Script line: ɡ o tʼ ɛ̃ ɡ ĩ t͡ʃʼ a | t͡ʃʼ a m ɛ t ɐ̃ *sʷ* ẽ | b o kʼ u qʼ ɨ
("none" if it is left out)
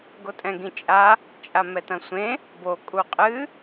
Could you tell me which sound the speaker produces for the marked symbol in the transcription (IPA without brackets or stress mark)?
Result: sʷ